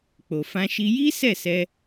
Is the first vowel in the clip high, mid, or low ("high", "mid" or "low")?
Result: mid